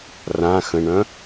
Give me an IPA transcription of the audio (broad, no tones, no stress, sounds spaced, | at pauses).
r ã x ə̃ ɳ œ̃